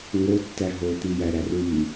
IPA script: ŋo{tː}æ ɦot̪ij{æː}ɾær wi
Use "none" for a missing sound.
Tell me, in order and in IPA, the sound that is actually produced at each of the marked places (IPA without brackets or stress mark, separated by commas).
tː, æ